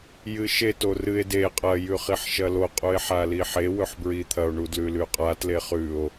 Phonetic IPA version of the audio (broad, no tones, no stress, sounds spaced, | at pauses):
j ɨ ʃ e t o r ɨ e̯ d e qʼ ɐ j ʉ χ i ħ ʃ ɐ l o qʼ u e̯ ħ a l i ħ e w ɵ ħ b ɹ i t̪ʰ ɐ o̯ ɳ u d l ʉ l ʉ qʼ a t l e χ ʉ o̯